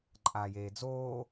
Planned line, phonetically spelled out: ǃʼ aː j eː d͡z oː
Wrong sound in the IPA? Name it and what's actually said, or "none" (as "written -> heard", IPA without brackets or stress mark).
none